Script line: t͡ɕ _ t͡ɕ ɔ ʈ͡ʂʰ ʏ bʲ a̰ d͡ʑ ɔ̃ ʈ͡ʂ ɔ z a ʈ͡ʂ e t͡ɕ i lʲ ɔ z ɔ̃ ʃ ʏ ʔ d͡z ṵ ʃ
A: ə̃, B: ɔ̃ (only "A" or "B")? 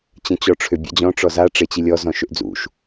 A